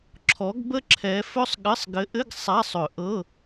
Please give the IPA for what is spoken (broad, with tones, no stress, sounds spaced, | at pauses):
ǁʰ ɔ˨˦ ɡ b ə˥ ǁʰ ɛ˨˦ f ɵ˥ sˤ ɠ ɘ˧˥˧ sˤ ɡ ɘ˨˦ ʔ ɘ˧˥˧ ɡ sˤ a˧˥˧ sˤ ɵ˨˩˦ ʔ ɤ˧˥˧